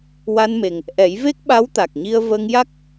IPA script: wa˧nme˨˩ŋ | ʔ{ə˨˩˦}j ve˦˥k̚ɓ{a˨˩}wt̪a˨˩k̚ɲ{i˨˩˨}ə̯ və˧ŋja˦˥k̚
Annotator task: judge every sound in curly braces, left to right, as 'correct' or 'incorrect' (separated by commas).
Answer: incorrect, incorrect, incorrect